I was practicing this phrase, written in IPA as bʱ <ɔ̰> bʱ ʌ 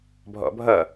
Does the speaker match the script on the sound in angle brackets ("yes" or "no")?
yes